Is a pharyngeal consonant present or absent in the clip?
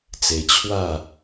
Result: absent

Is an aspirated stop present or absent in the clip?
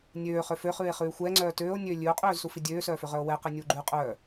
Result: absent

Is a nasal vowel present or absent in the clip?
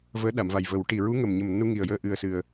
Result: absent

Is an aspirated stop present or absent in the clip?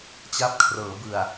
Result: present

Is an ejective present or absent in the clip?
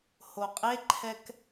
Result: present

